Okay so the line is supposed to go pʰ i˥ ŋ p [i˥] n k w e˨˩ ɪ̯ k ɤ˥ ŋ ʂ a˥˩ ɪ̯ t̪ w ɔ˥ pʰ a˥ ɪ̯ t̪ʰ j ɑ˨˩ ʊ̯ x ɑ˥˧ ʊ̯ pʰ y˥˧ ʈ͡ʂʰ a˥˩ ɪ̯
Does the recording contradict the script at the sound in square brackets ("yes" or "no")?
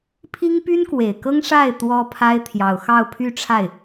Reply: yes